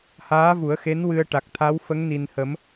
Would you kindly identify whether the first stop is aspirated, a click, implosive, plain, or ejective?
plain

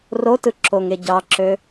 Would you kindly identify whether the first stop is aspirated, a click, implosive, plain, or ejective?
plain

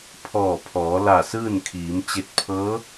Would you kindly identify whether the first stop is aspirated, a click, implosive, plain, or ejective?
aspirated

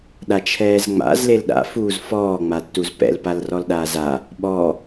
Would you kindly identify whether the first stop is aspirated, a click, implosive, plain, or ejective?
implosive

